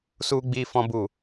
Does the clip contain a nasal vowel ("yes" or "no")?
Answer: yes